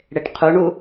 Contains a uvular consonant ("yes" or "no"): yes